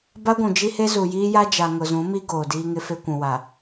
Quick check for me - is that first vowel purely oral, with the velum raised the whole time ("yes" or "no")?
yes